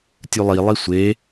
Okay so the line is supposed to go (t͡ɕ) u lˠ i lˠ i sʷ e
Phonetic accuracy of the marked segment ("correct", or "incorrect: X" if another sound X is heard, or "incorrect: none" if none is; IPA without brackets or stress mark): incorrect: tʲ